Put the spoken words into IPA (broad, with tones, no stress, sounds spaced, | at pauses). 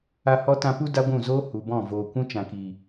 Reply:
a˧ h ɔ˦ t ã˧ p u˦ d a˦ ɡʷ ũ˦˨ z oː˦ h u˨ b ɔ̃˦˨ v oː˨ kʷ ũ˦ t͡ʃ ã˨ k i˨